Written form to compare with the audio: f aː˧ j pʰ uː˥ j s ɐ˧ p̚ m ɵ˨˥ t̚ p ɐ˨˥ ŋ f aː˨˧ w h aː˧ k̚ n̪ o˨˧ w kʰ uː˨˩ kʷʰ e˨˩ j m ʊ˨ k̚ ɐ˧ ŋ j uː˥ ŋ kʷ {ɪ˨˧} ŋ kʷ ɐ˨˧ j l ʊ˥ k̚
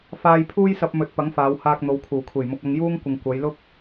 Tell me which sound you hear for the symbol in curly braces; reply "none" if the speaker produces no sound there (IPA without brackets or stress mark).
ɪ˨